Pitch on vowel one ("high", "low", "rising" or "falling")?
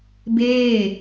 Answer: falling